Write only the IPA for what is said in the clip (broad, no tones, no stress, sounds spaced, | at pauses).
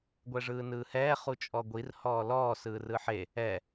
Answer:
ɡʷ ɛ ʐ ɯː n ɯː h ɛː χ u t͡ʃʼ ɔ ɡʷ i r h ɔː l ɔː s ɯː r ɯ ħ e | ɛ